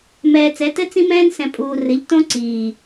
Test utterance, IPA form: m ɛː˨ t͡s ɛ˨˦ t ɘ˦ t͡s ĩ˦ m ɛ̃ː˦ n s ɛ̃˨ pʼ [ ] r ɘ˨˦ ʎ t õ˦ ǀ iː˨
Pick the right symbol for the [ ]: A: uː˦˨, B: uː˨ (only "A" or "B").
B